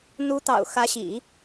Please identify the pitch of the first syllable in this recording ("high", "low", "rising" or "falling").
rising